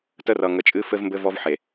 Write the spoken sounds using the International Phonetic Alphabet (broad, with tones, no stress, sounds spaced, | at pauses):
t ə˦ r ʌ˨ ŋ ə˨ t͡ʃʼ ɨ˦ f ɘ˦ v m b ɘ˦ v ɔ˦ v ħ e˨